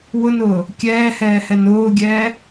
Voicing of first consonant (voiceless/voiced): voiced